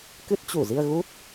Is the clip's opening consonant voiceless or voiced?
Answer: voiceless